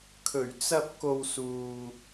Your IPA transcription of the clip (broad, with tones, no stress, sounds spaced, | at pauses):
kʰ ɵ˨˩ ɥ t͡s ɐ˧ p̚ k o˧ w s uː˨